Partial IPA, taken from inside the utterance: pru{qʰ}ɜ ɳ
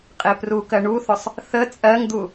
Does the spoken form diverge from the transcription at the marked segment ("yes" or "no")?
yes